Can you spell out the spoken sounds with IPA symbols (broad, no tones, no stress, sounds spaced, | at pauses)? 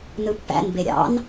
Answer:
n ɯ pː æ̰ n b e ɾʲ ɑ̰ n